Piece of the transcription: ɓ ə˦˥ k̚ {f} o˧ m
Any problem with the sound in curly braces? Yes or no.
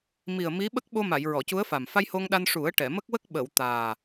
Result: yes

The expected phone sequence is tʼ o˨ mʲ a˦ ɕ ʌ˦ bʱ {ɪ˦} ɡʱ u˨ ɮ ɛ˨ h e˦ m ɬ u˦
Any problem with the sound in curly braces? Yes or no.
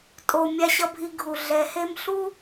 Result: yes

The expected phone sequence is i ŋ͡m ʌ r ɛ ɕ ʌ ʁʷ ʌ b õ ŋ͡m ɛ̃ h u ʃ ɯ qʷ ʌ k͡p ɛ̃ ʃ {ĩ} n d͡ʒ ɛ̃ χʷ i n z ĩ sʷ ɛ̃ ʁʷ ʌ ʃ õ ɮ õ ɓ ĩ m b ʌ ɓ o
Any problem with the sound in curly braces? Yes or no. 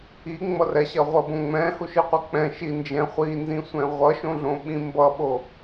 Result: yes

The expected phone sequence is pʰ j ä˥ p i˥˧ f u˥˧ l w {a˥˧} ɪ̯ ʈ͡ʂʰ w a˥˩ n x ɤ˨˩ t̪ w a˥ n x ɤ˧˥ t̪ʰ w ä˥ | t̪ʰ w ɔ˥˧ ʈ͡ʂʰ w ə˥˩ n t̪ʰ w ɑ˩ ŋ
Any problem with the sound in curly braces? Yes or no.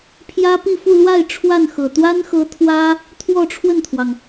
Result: no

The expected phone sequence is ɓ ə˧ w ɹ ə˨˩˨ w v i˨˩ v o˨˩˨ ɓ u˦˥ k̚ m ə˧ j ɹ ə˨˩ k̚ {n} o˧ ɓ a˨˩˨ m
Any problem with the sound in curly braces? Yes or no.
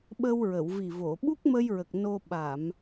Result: no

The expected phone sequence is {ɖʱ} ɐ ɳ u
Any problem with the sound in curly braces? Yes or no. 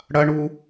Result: yes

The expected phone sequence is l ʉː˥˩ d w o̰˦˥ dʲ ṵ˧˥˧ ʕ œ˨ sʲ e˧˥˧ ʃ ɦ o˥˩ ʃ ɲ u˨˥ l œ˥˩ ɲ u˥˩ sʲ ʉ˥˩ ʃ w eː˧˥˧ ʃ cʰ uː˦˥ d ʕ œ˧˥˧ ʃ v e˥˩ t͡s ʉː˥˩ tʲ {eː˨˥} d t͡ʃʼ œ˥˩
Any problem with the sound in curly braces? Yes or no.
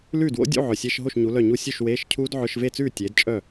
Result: no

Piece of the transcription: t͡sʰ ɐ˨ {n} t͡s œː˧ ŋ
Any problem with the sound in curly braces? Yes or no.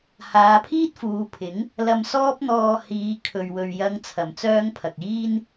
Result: yes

